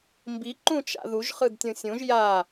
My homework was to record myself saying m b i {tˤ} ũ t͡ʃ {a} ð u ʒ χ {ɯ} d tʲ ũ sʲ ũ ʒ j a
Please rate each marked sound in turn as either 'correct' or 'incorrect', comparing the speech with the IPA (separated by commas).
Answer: incorrect, incorrect, correct